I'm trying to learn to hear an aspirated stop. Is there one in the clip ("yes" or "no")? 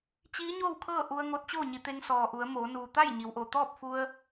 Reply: yes